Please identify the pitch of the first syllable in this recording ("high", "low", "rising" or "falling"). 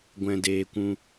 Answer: low